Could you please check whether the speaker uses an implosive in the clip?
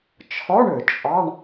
no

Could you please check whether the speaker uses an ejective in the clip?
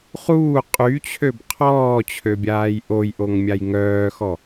yes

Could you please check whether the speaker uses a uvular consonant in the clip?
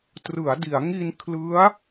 no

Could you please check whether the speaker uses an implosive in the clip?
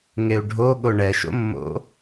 yes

